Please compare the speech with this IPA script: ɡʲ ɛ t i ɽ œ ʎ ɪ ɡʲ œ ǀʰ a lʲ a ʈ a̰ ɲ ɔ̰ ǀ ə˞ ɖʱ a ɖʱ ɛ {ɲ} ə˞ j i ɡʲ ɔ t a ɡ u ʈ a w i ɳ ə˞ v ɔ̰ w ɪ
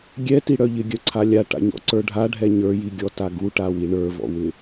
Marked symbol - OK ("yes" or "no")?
yes